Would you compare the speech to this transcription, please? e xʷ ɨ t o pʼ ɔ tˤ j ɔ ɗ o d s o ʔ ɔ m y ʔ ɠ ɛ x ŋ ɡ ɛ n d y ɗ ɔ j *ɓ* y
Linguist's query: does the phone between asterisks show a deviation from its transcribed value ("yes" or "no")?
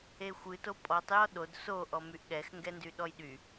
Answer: yes